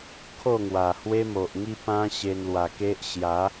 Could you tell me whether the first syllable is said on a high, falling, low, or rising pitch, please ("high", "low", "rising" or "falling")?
falling